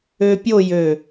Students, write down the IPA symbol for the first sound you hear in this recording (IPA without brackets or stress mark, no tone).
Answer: ø